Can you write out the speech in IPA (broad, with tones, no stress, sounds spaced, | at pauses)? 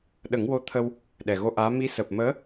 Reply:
ɗ ə˨˩˦ ŋ w o˧ t̪ʰ ə˧ w | ɗ ɛ˨˩ ɣ o˧ ʔ aː˧˥ m i˧˥ s əː˨˩ p̚ m əː˧˥